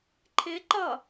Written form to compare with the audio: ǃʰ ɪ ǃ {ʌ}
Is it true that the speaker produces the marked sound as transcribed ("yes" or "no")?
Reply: yes